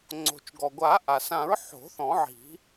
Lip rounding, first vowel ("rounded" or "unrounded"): rounded